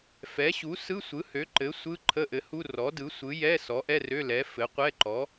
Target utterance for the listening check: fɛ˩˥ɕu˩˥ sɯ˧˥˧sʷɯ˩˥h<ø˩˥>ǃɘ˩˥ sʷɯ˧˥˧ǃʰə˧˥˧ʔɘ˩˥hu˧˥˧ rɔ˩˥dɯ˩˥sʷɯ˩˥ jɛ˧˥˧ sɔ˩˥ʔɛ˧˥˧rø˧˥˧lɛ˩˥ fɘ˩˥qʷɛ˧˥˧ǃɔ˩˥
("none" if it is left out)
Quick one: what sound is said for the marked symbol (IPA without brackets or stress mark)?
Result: ø˩˥